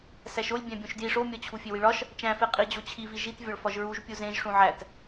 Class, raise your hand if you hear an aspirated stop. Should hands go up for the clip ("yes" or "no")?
yes